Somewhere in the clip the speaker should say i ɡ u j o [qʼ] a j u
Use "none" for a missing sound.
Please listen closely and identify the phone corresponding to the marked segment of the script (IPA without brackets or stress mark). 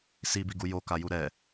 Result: k